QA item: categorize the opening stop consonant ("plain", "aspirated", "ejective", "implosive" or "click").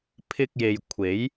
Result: aspirated